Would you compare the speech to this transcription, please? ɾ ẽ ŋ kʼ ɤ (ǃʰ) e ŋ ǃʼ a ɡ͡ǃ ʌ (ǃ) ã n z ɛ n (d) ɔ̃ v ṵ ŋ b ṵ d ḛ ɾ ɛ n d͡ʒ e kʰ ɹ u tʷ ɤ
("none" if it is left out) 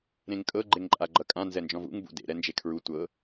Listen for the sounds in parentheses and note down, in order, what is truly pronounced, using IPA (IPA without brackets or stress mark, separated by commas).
ɡ͡ǃ, kʼ, d͡ʒ